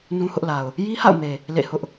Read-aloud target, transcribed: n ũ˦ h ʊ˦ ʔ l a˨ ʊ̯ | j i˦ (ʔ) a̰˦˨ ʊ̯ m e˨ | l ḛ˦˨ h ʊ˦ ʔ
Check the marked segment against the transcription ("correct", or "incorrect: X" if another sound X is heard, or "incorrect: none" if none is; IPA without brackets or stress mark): incorrect: h